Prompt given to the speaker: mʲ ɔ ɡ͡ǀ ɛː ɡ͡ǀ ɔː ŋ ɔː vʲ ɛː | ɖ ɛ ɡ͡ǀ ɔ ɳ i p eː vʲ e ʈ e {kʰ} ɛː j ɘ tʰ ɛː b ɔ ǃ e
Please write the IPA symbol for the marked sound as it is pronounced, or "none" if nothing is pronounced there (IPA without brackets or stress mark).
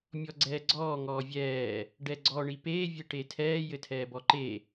tʰ